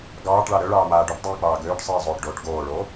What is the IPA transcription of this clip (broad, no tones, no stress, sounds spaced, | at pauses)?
ɡ ɑː ʈ ɭ ɑ ɾ ø ɭ ɑː m aː ɖ o ʈ dˤ iː k͡p ɑː ɡ øː ʈ sˤ iː zˤ oː ʈ ɖ oː ʈ ɡ oː ɭ oː